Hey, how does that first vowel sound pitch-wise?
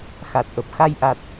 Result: low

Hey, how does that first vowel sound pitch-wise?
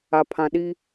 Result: low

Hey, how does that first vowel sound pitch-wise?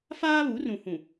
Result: high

